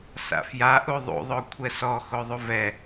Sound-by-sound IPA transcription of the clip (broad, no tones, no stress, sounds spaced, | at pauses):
s a̰ f j a ʔ u ðˤ ṵ ðˤ o kʷʰ ɛ s ɔ x o ðˤ u v ɛ